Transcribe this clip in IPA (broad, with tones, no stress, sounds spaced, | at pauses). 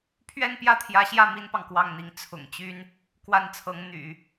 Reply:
pʰ ɥ ɛ˥˧ n p j ä˥˩ t̪ʰ j ä˧˥ ɕ j ä˥˩ m i˥ n p ɑ˨ ŋ k w ɑ˥˩ ŋ n̪ i˧˥ ŋ t͡sʰ ʊ̰˨˩ ŋ t͡ɕ y˥ n | k w a˥˩ n t͡sʰ ɤ˧˥ ŋ n̪ y̰˨˩˦